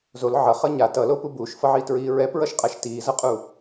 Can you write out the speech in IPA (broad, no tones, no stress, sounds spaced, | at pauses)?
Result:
z o l ʕ ʌ χ ʌ ɲ a t ʌ l o p u b uː ʃ f ʌ ʕ iː t ɹ iː ɹ ɛ p ɹ ʌ ʃ qʼ a ʃ t iː z ʌ qʼ u